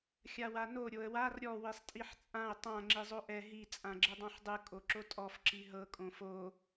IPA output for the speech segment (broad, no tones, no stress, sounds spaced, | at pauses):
xʲ a w a n o ɾʲ o ə̯ w a r ɾʲ ɔ w i sˤ tʼ i ħ t͡sʼ ã ʊ̯ tˤ ã ŋ͡ǁ i zˤ o ʔ ɛ ɦ i t͡sʼ ã ɡ͡ǁ e dˤ ã ħ dˤ ɯ kʼ o ǁ o tʼ ɔ f ǁ i ɦ ɤ kʼ õ f o